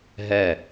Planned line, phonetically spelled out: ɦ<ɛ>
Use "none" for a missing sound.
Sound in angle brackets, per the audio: ɛ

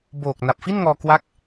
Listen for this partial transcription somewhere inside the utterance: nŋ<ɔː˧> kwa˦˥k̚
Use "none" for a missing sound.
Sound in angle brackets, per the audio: ɔː˧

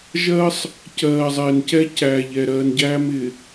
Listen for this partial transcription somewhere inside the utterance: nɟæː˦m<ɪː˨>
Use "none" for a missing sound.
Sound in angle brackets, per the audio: ɪ˨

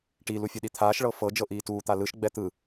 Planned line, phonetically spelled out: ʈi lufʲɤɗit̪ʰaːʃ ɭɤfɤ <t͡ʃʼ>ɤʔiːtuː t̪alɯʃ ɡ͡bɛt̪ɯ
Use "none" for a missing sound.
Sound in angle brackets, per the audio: d͡ʒ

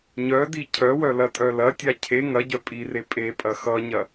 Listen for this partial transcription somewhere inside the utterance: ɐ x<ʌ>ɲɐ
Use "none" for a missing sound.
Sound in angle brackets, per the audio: ʌ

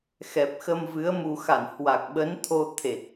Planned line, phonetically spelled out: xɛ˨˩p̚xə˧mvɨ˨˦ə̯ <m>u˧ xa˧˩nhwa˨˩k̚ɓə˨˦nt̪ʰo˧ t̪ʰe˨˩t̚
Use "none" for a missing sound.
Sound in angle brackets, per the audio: m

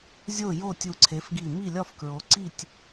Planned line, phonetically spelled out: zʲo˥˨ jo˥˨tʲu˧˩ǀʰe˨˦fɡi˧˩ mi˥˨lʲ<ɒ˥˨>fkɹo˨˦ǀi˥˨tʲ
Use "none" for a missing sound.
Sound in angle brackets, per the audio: ɒ˥˨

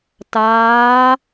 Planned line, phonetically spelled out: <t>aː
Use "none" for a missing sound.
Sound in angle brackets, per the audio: t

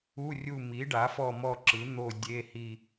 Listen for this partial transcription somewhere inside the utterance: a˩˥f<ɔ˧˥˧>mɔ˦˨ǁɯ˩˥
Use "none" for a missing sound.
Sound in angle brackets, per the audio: ɔ˦˨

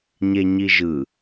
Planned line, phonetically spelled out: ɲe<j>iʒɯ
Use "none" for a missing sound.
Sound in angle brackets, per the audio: ɲ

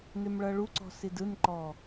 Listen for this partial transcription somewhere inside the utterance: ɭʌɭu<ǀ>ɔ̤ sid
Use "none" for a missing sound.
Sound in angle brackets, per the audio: ǀ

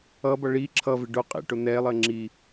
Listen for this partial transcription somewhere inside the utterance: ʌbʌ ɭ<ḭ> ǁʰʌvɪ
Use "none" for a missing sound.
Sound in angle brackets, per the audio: i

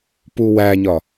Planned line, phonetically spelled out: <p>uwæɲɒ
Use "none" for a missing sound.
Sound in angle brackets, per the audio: p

